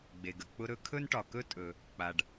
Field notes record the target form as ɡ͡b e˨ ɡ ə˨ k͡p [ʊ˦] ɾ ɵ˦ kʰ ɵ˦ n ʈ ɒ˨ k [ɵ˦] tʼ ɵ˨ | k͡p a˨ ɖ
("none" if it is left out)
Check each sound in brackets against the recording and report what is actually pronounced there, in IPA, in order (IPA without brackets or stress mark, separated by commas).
ʊ˦, ɵ˦